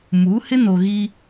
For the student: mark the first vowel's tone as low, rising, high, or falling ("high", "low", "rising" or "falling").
rising